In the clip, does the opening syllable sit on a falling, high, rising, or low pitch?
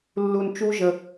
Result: low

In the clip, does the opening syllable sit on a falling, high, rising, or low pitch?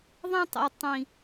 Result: high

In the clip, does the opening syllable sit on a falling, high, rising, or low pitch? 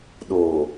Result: low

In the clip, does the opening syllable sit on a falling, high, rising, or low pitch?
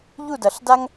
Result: falling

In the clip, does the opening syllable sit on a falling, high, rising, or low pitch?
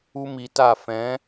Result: high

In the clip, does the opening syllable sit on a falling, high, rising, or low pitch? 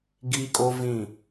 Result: high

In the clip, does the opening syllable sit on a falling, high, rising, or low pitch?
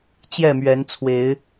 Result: falling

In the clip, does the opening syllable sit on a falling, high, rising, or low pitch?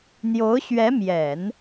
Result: rising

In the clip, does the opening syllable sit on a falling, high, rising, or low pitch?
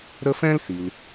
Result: high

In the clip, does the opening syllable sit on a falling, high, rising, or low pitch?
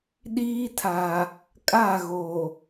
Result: high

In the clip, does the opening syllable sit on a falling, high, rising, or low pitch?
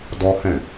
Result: high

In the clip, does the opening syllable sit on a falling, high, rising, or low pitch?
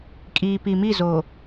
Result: low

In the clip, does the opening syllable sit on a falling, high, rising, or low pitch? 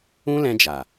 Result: high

